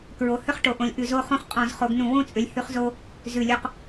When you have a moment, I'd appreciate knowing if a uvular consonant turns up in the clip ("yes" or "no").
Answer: yes